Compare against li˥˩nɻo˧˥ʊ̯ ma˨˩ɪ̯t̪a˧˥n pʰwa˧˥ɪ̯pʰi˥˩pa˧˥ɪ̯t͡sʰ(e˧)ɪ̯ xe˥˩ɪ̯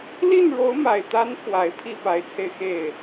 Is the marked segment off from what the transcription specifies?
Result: no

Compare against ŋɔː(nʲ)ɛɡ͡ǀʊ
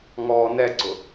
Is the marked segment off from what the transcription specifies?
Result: yes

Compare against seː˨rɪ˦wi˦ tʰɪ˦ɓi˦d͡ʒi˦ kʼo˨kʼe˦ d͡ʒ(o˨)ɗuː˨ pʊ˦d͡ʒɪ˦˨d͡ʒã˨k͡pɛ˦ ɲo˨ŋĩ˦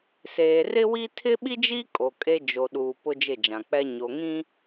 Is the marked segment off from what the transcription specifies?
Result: no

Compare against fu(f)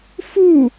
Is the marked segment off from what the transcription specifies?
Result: yes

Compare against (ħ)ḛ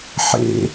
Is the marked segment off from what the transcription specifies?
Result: no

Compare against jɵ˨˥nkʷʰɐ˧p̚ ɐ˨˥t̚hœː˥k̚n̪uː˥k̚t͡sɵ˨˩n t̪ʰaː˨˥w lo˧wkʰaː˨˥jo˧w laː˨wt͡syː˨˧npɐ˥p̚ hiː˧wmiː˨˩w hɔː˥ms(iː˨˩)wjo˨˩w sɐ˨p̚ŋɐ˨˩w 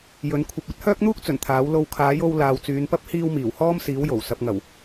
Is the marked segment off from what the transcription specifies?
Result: yes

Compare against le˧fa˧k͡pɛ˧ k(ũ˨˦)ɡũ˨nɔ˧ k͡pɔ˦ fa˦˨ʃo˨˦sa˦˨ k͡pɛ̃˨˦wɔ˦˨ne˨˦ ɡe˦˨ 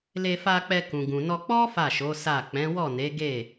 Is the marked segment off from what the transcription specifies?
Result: yes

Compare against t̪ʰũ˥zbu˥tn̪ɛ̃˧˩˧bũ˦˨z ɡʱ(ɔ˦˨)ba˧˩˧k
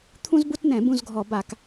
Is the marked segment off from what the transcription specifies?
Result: yes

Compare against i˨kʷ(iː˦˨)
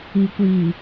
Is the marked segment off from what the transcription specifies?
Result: yes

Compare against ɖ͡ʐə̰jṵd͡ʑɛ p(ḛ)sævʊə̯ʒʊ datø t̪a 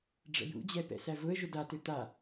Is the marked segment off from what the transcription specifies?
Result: yes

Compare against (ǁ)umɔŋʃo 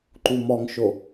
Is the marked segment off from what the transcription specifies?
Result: yes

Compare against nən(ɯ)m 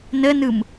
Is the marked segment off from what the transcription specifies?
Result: no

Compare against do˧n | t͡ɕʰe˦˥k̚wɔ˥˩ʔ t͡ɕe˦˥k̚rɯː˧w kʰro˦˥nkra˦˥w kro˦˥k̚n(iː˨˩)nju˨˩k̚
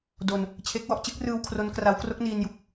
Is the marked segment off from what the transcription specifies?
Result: yes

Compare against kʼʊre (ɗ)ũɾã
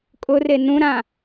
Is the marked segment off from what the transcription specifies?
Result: yes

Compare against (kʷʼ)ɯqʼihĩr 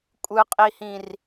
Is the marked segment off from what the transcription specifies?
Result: no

